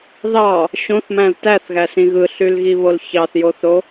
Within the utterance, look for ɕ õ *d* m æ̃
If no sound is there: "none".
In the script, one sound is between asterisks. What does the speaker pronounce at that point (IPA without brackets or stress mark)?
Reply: θ